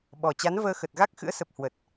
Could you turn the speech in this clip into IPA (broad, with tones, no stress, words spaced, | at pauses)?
ɓɔ˨˩t͡ɕa˨˦n vəː˧xə˨˩t̚ɣa˦˥k̚ xɨ̰˧˥ə̯sə˨˩p̚ hwə˨˩t̚